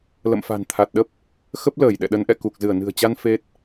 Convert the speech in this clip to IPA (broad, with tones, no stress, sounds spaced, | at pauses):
l ə̰˧˨ m f a̤˨˩ n t̪ʰ a˨˩ t̚ ɗ ə˦˥ p̚ | x ə˦˥ p̚ l əː˧˩ j ɗ ɛ̰˧˨ ɗ ə˨˦ n ʔ ɛ̰˧˨ k u˨˩ k̚ z ɨ˧˩ ə̯ n ɨ̤˨˩ ə̯ t͡ɕ a˧ n f e˦˥ t̚